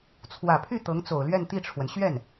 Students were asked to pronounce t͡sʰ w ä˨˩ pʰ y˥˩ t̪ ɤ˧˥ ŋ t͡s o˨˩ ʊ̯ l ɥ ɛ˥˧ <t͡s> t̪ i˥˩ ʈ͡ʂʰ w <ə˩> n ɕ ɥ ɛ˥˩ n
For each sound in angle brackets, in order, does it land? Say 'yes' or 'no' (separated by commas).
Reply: no, yes